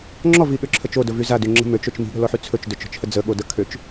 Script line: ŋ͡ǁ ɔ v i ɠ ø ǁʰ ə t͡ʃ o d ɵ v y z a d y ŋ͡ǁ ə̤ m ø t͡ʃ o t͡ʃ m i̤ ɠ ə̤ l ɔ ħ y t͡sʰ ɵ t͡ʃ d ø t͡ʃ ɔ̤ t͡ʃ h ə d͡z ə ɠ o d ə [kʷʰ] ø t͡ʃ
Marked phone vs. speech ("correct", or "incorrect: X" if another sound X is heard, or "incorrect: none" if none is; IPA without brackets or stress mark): incorrect: kʰ